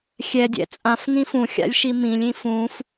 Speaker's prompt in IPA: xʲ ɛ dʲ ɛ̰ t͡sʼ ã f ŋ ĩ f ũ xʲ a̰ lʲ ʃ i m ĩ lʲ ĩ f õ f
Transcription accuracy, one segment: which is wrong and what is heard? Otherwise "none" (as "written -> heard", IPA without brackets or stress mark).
õ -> ũ